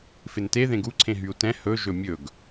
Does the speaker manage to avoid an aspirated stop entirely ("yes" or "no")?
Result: no